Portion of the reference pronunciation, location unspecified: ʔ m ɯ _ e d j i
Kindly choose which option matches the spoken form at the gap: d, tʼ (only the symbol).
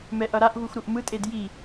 tʼ